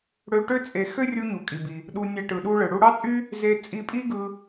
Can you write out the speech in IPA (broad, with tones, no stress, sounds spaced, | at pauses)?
ɽ ø˧ ʈ ø˥ t͡sʼ e˧ x ø˥ rʲ u˧ ɲ u˩ kʼ i˩ b i˩ | ɗ u˧ nʲ æ˧ ʈ ɯ˩ ɗ u˧ ɭ ɯ˩ ɽ u˧ ɽ ɑ˥ t͡sʼ y˥ | z e˧ t͡sʼ i˧ pʼ i˥ ɡ ɯ˧